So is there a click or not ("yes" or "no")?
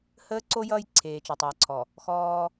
yes